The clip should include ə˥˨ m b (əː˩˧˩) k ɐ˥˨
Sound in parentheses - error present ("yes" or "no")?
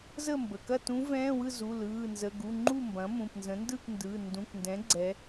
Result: yes